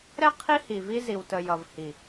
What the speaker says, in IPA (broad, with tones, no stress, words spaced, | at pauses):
ɾɛ˦ qʰi˦hi˨vi˦ zi˨wtə˨ jʌ˨v hi˨